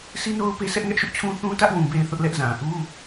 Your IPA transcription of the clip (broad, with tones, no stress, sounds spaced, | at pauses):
s i˦ n o˦ ʊ̯ p e˦ s ɛ˦ ʔ ŋ ɛ˦ ʔ ʃ ʊ˦ ʔ t͡ɕʰ ũ˦ θ ũ˦ t ä˦ ʔ w ũ˨ b e˨ ɪ̯ θ ʊ˦ ʔ l ɛ˦ ʔ z ã˨ ʔ u˦